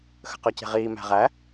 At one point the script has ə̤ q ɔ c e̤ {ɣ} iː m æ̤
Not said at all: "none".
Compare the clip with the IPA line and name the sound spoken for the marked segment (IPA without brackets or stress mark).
ʁ